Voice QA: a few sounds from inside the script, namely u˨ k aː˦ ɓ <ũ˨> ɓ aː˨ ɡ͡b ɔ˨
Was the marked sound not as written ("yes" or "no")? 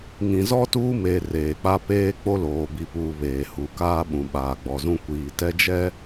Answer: no